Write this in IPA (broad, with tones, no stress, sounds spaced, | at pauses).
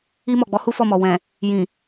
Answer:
i˧ m ɔ˨ ɡ͡b ɔ˨˦ h u˦ f ɔ˦˨ m ɔ˨ w ɛ̃˨ | j ĩ˨